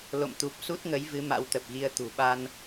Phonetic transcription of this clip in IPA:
lo̰˧˨mt̪u˨˩p̚ su˦˥t̚ŋə˨˦jvɨ˨˦ ma̰˧˥wt̪ə˨˩p̚ɣi˧ə̯ t̪ṳ˨˩ɓa˧n

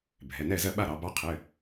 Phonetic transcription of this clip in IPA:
bʱɛ˩˧˩nɛ˥˨zɜ˥˨ ɓa˥˨ɾɑ˩˧ bɑ˧˥qʰɘ˩˧˩

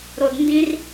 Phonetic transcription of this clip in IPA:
ɾo˧dndĩ˦r

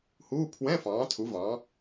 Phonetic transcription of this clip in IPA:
huː˧˥˧ pʰwɛ̃˧˥˧ fɑ̃ː˩˥tʰu˩˥vɑ̃˩˥

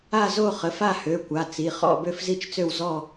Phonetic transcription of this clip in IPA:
a˥˧ zo˥˧χə˩˧˩fa˥˧hø˩˧˩ kʷa˩˧˩t͡si˩˧˩χɔ̰˥˧ bø˥˧fzi˥˧t͡ʃt͡sø˥˧w zɔ˥˧

